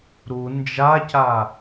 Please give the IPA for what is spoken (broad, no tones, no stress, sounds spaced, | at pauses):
ɾ u n d͡ʒ a c a